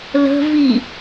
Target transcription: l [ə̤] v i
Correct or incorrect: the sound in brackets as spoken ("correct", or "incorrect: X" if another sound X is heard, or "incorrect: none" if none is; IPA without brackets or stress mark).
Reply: correct